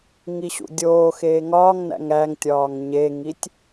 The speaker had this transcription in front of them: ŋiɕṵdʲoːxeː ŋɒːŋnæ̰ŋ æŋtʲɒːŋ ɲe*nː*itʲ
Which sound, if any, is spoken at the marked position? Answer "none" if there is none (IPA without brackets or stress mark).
ŋ